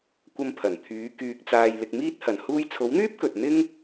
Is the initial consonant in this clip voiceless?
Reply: yes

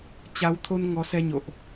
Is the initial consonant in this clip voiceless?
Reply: yes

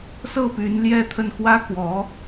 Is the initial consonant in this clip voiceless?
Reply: yes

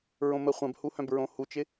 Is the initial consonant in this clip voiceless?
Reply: no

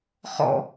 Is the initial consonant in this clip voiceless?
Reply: yes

